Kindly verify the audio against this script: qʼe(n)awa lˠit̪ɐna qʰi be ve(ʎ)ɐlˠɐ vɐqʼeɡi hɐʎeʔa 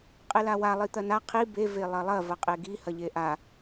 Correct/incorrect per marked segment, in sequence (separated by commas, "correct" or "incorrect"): incorrect, incorrect